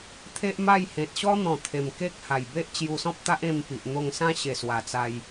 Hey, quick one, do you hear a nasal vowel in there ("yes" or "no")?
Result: yes